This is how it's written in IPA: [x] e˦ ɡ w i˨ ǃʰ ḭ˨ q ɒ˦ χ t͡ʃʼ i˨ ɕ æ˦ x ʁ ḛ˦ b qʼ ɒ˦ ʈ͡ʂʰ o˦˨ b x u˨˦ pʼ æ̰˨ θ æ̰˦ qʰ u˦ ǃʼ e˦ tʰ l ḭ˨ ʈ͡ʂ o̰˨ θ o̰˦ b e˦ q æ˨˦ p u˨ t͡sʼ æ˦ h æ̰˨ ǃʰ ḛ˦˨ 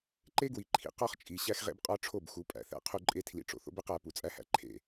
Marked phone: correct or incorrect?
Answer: incorrect